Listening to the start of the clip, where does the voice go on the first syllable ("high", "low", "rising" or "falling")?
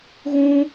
high